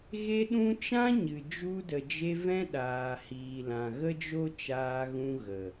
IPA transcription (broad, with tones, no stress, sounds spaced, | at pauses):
ɣ e˧ ɗ ũ˧ t͡ʃ ã˦ ɲ ɨ˨ d͡ʒ u˧ d ə˨ d͡ʒ e˧ v ɛ̃˦ ɗ aː˨ h iː˨ l ã˨ ɣ ə˦ d͡ʒ o˦ t͡ʃ aː˧ ɣ ũ˧ ɣ ə˨